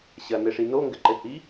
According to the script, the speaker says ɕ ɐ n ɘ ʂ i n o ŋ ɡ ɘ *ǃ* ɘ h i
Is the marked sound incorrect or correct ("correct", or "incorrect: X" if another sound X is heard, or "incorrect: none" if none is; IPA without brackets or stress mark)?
correct